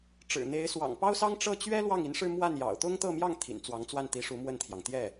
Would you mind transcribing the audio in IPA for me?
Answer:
ʈ͡ʂ ɻ̩˨˩ n̪ e˧˥ ɪ̯ s w ɑ̰˨˩ ŋ p ɑ˥ ʊ̯ s ɑ˥ ŋ ʈ͡ʂ ɤ˥˩ t͡ɕ ɥ ɛ˥ l w ɑ˥˩ ŋ i˧˥ n ʂ ɻ̩˥˧ m w a˥˩ n j ɑ̰˨˩ ʊ̯ t̪ ʊ˥ ŋ t̪ ɤ˥˧ m j ɑ˥˩ ŋ t̪ʰ ḭ˨˩ n t͡s w ɑ˧˥ ŋ t͡s w a˥˩ n t̪ i˧˥ ʂ u˧˥ m w ə˥˩ n t̪ʰ j ɑ˩ ŋ t̪ j ɛ˥˩

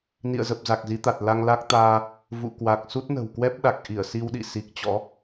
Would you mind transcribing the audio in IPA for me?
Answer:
n ḭ˧˨ ə̯ z ə˨˩ p̚ z a˨˩ k̚ z i˨˦ t̪ a˨˩ t̚ l a˧ ŋ l a˦˥ k̚ t̪ aː˧ | v ṵ˧˨ k w a˨˩ k̚ s u˦˥ t̚ n ə̤˨˩ w k w ɛ˦˥ p̚ ɗ a˨˩ k̚ ʔ i˧˩ ə̯ s i˧ w ɗ ḭ˧˨ s i˨˩ k̚ t͡ɕ ɔ̰˧˥

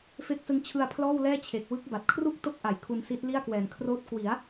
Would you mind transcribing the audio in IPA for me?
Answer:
f e˦˥ k̚ s ɯ˧ ŋ t͡ɕʰ ɯ˧ a̯ pʰ l ɔː˥˩ w l ɛː˥˩ t͡ɕʰ e˨˩ k̚ w ɯ˦˥ k̚ b a˨˩ t̚ kʰ r u˥˩ k̚ t o˦˥ k̚ ʔ a˩˦ j kʰ u˧ n s i˦˥ t̚ l i˥˩ a̯ k w ɛː˩˦ n kʰ r oː˦˥ t̚ k w i˩˦ a̯

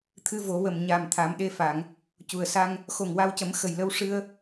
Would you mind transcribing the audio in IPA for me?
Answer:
t̪ʰ ɨ˧˥ v o˨˩˦ w ə˨˩ m ɲ a˨˩ m t̪ʰ a˨˩˦ m ɗ e˧ f a˨˩˨ ŋ | c u˨˩ ə̯ s a˧ ŋ | x o˨˩ ŋ w a˧ w c ə˨˩˦ m x ə˨˩ j l ə˧ w ʂ ɨ˧ ə̯

